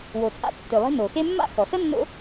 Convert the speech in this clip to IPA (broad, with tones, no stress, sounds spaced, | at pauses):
w o˩ t͡sʼ a̰˦ tː ø˩ lˠ e̤˦ n o˩ x e˦ mː a̰˥ x ɔ˩ s ə˥ nː o̰˦